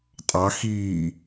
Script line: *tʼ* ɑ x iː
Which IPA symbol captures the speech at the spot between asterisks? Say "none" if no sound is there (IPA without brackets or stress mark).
tʼ